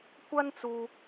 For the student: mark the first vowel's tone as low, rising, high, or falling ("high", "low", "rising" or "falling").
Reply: high